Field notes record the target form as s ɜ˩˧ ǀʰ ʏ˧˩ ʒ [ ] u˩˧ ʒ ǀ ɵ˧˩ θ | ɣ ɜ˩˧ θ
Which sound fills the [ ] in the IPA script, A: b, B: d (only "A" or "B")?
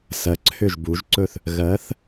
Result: A